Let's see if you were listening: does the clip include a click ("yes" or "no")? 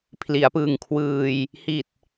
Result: no